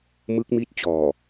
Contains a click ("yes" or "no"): no